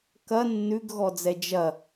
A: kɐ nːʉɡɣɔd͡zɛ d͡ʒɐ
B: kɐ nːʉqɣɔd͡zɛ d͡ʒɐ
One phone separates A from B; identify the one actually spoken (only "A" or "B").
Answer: A